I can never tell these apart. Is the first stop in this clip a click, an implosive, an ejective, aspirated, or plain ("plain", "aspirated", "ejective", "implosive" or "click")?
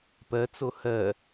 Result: plain